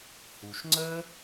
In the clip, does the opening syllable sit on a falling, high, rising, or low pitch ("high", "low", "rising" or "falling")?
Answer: low